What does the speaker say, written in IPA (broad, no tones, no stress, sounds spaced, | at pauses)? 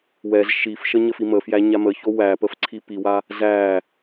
w ɛ z ʃ i f ʃ ə ɲ ə f i m ə f j æ ɲ a m ə ç o w æ p ə f ǀʰ i p i w a | z æ